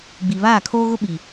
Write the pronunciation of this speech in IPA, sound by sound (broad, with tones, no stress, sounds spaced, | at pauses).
ɡ͡b i˨ β aː˦˨ kʰ oː˦ ɣ ʊ˦ ɓ i˨